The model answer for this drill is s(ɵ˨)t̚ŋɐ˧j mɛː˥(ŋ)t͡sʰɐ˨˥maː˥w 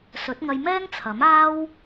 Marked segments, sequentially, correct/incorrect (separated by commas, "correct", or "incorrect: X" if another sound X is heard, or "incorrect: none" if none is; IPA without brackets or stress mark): incorrect: ɵ˨˥, correct